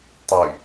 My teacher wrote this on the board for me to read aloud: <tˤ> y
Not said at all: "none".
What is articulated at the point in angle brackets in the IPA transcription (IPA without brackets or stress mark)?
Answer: tˤ